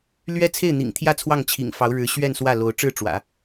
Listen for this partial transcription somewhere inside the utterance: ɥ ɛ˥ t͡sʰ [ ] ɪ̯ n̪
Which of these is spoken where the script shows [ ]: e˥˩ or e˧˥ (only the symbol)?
e˥˩